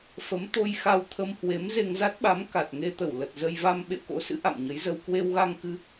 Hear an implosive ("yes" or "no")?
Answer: yes